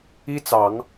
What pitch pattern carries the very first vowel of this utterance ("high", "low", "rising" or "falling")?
high